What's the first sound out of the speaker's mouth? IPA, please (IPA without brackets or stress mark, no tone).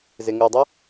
z